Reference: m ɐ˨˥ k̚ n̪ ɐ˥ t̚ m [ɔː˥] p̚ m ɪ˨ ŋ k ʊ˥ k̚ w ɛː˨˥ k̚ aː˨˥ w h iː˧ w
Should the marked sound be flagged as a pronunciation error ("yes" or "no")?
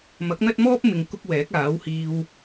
no